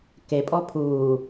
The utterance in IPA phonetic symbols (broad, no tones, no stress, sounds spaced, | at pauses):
k e pʼ ɔ pʰ uː